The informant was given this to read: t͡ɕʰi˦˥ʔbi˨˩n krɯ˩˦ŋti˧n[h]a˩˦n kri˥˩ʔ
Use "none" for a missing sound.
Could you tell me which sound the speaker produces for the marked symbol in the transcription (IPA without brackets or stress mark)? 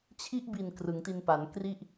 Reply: p